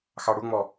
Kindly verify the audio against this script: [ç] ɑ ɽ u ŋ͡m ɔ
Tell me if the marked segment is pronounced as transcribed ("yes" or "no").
no